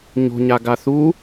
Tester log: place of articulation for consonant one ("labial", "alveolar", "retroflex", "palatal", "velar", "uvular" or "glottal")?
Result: palatal